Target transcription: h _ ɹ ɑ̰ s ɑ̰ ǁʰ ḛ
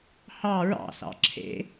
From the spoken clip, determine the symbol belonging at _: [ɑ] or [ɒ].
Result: ɑ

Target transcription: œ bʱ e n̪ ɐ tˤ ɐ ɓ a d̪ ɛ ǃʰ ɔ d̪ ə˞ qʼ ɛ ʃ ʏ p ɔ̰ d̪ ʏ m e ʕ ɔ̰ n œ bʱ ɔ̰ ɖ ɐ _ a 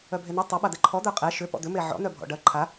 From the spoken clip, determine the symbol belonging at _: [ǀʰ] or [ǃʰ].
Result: ǃʰ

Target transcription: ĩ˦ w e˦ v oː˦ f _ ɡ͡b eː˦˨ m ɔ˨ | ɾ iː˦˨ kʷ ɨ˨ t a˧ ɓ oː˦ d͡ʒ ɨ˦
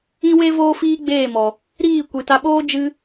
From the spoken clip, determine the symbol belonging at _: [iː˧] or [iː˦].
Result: iː˦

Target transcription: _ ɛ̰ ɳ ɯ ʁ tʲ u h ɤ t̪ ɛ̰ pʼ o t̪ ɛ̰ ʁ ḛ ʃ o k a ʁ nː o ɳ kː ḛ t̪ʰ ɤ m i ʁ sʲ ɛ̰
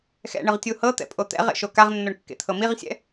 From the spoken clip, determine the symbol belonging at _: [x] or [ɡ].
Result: x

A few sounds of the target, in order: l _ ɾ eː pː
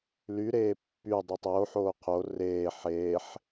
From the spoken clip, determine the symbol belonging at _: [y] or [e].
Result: y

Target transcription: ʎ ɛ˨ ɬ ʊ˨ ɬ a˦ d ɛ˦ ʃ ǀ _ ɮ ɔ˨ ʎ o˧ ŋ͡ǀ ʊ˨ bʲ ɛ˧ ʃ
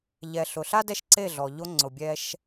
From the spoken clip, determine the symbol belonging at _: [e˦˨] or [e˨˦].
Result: e˦˨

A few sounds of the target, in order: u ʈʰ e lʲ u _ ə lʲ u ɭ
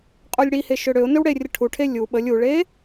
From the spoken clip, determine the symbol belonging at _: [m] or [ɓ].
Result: ɓ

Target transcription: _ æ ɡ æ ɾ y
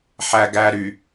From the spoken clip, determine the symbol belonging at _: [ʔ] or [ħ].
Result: ħ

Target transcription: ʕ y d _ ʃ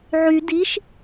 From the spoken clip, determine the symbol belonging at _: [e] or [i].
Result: i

